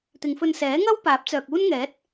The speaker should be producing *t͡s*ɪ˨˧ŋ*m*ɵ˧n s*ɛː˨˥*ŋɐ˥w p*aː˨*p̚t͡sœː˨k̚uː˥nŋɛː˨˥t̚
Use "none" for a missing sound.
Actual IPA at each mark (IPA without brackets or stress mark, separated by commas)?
t̪, f, ɛː˨˥, aː˨˥